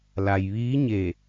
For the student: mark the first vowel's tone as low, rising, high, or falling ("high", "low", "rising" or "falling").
low